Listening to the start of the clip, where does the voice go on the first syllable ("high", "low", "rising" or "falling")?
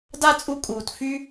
high